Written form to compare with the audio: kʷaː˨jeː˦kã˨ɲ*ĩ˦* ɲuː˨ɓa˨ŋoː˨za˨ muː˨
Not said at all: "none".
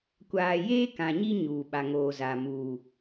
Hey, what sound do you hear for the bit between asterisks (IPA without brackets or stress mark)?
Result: i˦